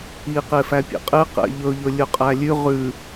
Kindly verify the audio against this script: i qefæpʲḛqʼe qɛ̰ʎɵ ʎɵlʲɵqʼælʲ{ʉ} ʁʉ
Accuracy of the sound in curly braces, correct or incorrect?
correct